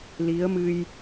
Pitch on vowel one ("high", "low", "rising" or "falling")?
rising